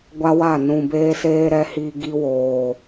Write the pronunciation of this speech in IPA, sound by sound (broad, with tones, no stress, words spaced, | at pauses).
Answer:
ɡʷa˦wa˦˨ nũ˨beː˦seː˦ɾɛ˦ hi˦ ɡi˦woː˨